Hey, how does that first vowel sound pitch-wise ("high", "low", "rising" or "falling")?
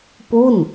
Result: falling